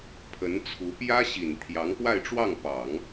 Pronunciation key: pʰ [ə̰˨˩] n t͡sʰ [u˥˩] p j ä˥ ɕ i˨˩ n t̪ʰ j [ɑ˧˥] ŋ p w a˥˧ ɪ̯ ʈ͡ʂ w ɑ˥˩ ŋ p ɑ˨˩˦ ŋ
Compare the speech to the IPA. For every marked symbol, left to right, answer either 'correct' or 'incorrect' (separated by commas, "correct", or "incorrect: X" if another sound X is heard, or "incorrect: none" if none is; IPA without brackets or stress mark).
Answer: incorrect: ə˧˥, incorrect: u˧˥, correct